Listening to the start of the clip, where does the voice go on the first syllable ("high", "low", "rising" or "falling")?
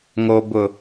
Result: low